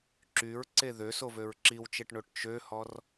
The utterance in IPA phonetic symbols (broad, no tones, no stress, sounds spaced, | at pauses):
ǁ y ɹ ǀ e ð ø s o v ø ɹ ǁ i w t͡ʃ e ʈ ɳ o ʈ t͡ʃ ø h ɔ r